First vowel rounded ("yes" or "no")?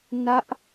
no